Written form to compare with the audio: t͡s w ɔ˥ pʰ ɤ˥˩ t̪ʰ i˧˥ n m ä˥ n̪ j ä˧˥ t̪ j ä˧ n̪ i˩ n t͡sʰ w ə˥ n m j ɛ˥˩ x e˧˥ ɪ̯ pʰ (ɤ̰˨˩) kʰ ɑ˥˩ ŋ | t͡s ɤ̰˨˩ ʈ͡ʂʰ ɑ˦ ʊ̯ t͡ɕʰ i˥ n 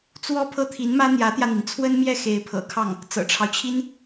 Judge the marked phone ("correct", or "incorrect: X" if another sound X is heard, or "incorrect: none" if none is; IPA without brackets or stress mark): correct